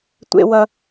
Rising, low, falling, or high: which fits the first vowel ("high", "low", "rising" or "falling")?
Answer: high